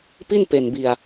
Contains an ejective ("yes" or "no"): no